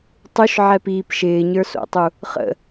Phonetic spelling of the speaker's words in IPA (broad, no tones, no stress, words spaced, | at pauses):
tˤuʃʕɛpiːp ʃɪːɲə˞so̰tˤu | χə̰